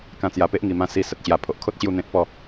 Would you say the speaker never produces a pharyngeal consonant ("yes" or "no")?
yes